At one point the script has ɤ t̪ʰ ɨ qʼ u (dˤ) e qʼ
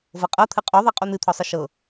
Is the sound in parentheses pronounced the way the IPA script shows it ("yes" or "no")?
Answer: no